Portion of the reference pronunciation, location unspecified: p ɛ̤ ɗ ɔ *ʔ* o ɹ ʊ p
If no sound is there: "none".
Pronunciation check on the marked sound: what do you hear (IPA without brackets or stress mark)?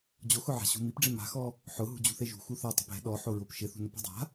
ħ